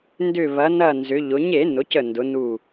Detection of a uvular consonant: absent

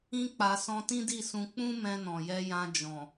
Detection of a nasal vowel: present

